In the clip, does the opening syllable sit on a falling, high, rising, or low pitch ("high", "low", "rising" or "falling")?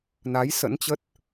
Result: rising